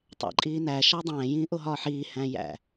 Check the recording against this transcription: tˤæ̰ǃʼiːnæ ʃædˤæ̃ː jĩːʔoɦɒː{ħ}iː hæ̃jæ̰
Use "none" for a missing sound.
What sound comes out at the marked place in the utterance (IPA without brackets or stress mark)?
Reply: ħ